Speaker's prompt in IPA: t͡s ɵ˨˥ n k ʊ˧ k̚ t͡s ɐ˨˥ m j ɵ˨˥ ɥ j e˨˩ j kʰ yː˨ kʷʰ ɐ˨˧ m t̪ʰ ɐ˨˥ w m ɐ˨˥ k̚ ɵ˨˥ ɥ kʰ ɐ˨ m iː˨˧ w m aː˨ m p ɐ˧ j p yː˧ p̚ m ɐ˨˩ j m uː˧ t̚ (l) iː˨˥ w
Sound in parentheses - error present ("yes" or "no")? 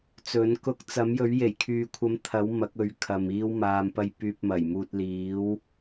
no